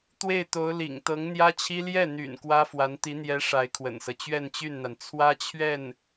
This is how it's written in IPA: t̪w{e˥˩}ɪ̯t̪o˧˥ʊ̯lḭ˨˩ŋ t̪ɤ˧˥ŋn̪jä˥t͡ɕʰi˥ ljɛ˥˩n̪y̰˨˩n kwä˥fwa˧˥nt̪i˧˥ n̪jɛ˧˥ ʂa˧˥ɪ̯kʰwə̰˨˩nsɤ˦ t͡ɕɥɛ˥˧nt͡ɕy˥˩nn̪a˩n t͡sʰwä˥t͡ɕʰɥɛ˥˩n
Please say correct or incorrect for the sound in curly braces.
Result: correct